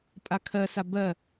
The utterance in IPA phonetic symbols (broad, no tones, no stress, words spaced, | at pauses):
pʼakʰɜ sabɜ